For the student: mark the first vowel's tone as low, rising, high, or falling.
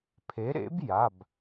rising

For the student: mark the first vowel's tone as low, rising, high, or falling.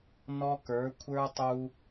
high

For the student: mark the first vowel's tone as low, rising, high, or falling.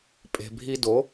low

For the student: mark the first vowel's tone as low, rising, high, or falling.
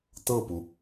falling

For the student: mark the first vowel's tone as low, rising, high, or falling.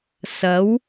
rising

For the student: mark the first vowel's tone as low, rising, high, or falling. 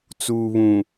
low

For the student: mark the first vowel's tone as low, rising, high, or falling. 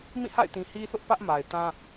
falling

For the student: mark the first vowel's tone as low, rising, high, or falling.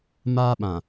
high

